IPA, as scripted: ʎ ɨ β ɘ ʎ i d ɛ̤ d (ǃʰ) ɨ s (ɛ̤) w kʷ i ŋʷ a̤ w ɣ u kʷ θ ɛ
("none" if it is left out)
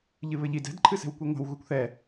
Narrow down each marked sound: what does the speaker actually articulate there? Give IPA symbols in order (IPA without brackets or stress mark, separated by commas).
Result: ǃʰ, ɛ̤